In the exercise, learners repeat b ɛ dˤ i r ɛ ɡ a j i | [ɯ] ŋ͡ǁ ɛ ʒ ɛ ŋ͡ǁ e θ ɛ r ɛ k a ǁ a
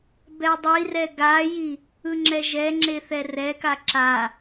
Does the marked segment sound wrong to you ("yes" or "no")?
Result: no